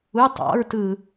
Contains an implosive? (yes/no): no